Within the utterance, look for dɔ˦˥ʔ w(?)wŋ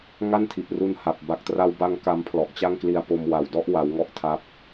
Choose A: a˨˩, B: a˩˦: B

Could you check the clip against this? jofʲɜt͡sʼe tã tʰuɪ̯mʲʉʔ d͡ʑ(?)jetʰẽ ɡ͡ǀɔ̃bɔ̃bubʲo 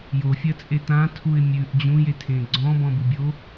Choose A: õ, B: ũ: B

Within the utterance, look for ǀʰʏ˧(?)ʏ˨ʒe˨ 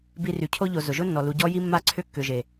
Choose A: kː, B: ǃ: A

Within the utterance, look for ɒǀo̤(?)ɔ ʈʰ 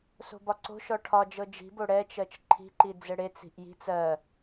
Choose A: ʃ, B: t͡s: A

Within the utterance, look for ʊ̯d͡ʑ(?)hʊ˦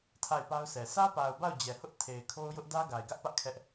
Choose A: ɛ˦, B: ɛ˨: B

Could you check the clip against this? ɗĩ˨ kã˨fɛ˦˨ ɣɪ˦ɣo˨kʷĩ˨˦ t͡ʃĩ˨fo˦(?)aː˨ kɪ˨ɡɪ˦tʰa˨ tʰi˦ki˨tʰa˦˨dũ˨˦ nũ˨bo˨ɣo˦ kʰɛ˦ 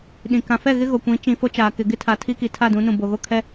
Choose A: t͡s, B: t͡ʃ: B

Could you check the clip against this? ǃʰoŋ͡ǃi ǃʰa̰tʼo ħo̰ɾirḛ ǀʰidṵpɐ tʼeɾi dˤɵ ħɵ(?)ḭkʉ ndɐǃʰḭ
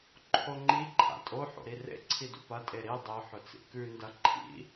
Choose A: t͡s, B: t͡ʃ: A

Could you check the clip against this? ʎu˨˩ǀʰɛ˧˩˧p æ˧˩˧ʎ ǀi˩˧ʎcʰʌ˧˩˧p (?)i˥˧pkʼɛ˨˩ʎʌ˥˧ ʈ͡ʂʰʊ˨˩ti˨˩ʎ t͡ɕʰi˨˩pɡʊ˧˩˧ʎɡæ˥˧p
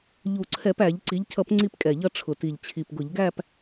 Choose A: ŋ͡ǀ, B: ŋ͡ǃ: A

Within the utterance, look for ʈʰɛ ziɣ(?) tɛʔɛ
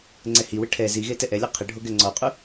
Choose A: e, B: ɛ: A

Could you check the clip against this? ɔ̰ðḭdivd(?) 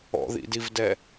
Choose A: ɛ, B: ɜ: A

